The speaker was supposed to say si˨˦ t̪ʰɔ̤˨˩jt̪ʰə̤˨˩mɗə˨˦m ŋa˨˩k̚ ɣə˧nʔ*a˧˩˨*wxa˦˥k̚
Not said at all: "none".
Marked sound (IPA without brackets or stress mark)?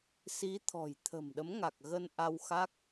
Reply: a˧